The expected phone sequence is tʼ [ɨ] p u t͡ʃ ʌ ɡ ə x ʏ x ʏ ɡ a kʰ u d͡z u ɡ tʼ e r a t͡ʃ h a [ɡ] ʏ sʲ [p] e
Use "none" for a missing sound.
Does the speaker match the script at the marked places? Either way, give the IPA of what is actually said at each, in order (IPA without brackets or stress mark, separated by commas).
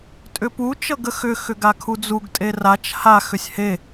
ʏ, x, h